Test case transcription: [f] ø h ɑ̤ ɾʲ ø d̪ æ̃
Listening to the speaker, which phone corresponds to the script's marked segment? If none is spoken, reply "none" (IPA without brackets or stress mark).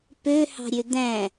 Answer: p